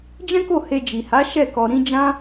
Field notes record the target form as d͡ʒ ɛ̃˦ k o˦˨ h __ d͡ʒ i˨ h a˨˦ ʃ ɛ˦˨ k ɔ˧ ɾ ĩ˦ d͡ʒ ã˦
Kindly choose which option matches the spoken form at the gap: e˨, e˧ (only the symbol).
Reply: e˧